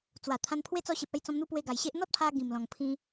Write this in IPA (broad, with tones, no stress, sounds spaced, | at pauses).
t͡s w a˨˩ t̪ʰ ã˧ n pʰ w e˦ t͡s ɔ˧ ɕ e˨ p̚ a˥˧ j t͡s ɔ̃˧ m n̪ u˧ p w e˧ ɡ a˨˩ j ɕ e˦ ʔ n̪ ɔ˦ t̚ pʰ a˧ ɡ ĩ˨˩ m l ɔ̃˨˩ ŋ pʰ ĩ˧